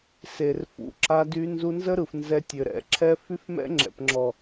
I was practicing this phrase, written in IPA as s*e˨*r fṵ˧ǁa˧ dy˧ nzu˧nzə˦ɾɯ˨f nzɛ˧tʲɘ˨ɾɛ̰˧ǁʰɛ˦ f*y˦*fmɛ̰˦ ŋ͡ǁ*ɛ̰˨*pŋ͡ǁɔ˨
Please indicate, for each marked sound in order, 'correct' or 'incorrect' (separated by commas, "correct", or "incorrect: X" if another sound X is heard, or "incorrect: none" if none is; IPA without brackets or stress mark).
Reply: correct, correct, correct